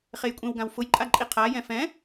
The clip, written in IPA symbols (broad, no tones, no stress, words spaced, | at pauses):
χejkʷʼẽwɡãw fʊjǃʼa ǃʼiqʰajɛ̃ fɛ̃